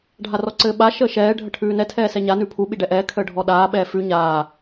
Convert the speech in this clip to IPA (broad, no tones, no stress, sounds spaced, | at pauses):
ɖʱ a r ɔ ǀ ɘː ɓ a ʃ əː ʃ ɛː ɖʱ ə ʈʰ ʉː n ɛ tʰ ɛː s ɛ ɲ a n ʉ pʰ u ɓ i ɖ ɛ ʔ ɛː kʰ əː ɖʱ ɔ ɗ aː ɓ ɛː f ʉ ɲ aː